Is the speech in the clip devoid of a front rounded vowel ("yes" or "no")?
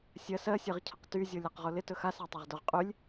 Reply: no